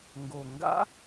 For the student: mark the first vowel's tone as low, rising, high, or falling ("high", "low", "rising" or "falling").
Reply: low